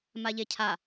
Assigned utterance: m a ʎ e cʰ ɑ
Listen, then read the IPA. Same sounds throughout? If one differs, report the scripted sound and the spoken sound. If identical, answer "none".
ɑ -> a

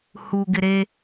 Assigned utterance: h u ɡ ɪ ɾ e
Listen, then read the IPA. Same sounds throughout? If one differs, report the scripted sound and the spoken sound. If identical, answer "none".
none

